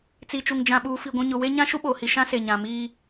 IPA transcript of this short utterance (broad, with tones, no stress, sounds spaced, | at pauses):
t͡s i˨ t͡ʃ u˨ ŋ d͡ʒ ã˨ ɓ uː˨ f i˨ ɡʷ ũ˨ ɲ ʊ˨ w e˦ ɲ ã˦ ʃ u˦ ɓ oː˨ h i˨ ʃ ã˦ s e˨ ɲ ã˨ m iː˦